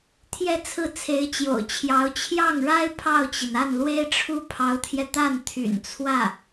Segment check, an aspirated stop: present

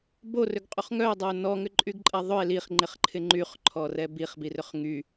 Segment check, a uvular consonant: present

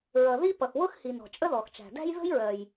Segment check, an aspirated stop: absent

